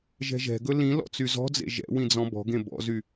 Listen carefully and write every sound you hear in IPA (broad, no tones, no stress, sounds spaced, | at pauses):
ʒ ɛ̤ ʒ ɛ̤ ɡ ɵ l ĩ l ɔ̰ t͡s y z ɔ̤ d͡z ḛ ʒ ɛ̰ w ĩ d͡z ɔ̃ b ɔ̤ ɡ ẽ b ɔ̰ z y